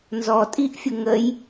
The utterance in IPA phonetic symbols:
n z ɔ tʼ i ʔ fʲ ʊ ŋ ə j

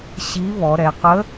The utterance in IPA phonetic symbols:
ɕ i˧˥ β ɔ˩˧ ɾ ɛ˩˧ q ə˧˥

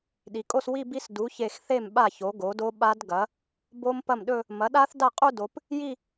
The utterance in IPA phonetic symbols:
ɗ i˩˧ kʼ o˥˧ s w i˥˧ b i˦˥ s d u˩˥ ç e˧˩ x θ e˥˩ m ɓ a˥˩ ç o˩˥ ɡ o˩˥ d o˦˥ ɓ a˦˥ d ɡ ɐ˩˥ | b o˦˥ m p ɐ˥˩ m ɗ ɵ˥˧ | m ɐ˩˥ ɗ a˦˥ θ d a˥˩ qʼ u˥˧ d o˩˧ p | j i˥˧

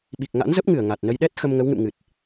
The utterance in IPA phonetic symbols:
ɓ i˨˩ k̚ ŋ a̰˧˥ n z ə˦˥ p̚ ŋ ɨ˧˩ ə̯ ŋ a˨˩ t̚ n ə˧ j ɗ ɛ˦˥ t̚ x ə˧ m ŋ ə˨˦ w ŋ ɨ̰˧˨ m ŋ ɨ˨˩ t̚

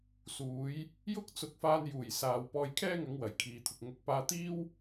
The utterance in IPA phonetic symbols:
s uː˨˥ j | j ʊ˥ k̚ t͡s ʊ˨˥ k̚ f aː˧ n j uː˨˩ j s aː˨ w p ɔː˧ j kʰ ɛː˥ ŋ ɐ˨˧ ŋ w ɐ˨˩ j kʰ iː˨ t̪ʰ ʊ˨ k̚ ŋ ʊ˨˥ k̚ p aː˧ t̪ iː˥ w

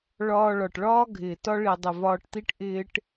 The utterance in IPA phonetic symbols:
ɭ ɒː˧ ɭ ɒ˨ ʈ ɭ ɒː˦ ɡʱ ɪː˨ t ɒ˦ ɭ i˨ dˤ ɪ˨ v ɒː˧ ʈ t̪ i˦ ʈ ʔ ɪː˦ ʈ

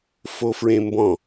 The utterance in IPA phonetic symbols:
f o f ɹ ẽ m b ɔ̃

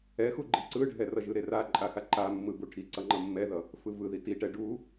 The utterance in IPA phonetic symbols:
ɛ x u ɡ͡ǃ i ǀ ɯ ɖʱ ɛ r ʌ ʒ ɯ ɾ e r a ǃʼ a x a ǃ a mː ɯ b u ʈʰ i ǀ ʌ ŋ͡ǃ ʌ mː ɛ ð ʌ | f ɯ v ɯ ð i t i ʈ ɛ ɖ u

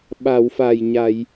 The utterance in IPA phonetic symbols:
ɓ a˨˩˨ w f a˨˩ j ɲ a˨˩˨ j

